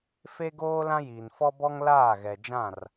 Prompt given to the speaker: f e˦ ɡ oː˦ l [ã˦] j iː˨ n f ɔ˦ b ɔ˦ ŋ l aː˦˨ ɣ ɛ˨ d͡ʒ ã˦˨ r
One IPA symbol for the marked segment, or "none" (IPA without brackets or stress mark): ã˦